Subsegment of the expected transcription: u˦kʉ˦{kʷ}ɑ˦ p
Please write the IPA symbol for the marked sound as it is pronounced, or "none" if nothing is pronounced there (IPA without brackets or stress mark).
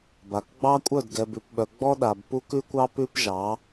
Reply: kʷ